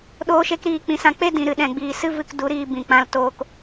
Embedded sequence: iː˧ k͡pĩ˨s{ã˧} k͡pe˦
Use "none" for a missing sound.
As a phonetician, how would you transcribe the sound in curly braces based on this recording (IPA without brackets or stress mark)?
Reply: ã˧